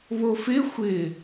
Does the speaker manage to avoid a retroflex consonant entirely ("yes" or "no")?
yes